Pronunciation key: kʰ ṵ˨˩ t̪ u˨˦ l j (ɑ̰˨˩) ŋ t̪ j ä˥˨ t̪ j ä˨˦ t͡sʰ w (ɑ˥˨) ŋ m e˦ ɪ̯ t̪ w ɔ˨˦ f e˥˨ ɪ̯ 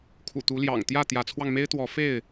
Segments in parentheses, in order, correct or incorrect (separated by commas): correct, incorrect